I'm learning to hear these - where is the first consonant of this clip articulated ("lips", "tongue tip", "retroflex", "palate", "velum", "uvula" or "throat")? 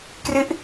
velum